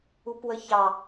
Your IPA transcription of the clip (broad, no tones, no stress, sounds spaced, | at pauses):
u p w ə ç ɑ